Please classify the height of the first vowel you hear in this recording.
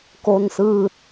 mid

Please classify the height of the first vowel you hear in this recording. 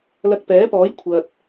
low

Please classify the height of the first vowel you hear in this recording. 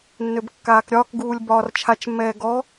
mid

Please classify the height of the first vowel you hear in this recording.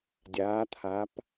low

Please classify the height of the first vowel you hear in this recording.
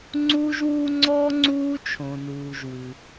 high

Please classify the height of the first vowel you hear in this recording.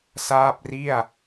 low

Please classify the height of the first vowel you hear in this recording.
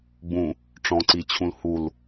high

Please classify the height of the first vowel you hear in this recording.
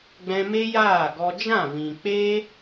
mid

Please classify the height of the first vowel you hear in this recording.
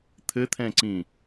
mid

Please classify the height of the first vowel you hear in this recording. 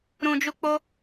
high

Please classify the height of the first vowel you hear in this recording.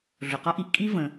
high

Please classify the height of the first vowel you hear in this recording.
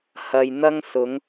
low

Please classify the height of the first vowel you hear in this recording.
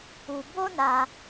high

